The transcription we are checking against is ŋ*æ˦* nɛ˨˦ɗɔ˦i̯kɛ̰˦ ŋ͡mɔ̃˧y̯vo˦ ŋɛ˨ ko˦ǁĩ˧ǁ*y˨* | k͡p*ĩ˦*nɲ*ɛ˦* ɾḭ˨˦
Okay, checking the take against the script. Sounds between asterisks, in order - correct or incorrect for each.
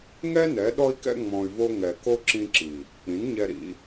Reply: incorrect: ɛ˦, incorrect: i˨, incorrect: ĩ˨˦, incorrect: ɛ˧

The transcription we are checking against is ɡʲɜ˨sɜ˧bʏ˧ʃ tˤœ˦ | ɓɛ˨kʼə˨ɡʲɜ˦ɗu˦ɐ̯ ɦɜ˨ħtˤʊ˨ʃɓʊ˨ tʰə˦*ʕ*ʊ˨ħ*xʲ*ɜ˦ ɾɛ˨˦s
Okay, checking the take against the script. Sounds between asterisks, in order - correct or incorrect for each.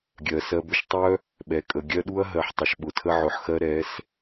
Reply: correct, incorrect: x

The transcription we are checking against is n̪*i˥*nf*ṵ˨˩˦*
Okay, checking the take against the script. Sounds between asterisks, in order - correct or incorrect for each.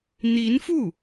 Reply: incorrect: i˧˥, incorrect: u˥˩

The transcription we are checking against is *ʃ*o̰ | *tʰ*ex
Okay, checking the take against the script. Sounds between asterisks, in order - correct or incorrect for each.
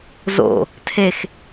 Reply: incorrect: z, correct

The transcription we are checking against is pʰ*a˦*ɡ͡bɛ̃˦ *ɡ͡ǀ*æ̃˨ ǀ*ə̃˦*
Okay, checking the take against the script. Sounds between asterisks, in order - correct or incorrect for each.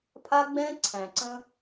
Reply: correct, incorrect: ǀʰ, correct

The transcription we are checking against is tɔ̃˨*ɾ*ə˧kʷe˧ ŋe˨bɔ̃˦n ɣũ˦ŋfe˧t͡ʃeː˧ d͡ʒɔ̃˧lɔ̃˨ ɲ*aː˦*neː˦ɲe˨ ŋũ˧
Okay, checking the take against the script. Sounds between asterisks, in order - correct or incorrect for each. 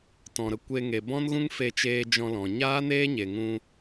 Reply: correct, correct

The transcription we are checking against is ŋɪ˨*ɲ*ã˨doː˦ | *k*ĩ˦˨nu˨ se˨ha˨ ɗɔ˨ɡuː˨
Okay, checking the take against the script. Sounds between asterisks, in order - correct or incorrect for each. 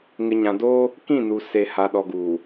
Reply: correct, correct

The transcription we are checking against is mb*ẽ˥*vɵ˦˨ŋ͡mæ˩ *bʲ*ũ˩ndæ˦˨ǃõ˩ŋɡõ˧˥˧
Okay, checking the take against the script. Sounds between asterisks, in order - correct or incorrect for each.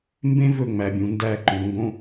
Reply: correct, correct

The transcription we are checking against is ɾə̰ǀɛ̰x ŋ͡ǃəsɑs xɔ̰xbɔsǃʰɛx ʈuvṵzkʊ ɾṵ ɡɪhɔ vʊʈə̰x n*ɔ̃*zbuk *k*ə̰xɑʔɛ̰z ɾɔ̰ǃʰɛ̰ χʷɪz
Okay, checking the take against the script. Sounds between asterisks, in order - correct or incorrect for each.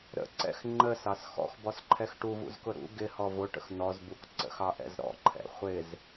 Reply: incorrect: ɔ, incorrect: ǀ

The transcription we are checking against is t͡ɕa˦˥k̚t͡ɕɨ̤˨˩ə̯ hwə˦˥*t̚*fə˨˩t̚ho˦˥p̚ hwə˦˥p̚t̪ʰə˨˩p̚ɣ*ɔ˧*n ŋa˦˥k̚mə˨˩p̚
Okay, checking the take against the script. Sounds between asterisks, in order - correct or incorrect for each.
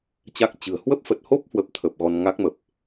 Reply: incorrect: p̚, correct

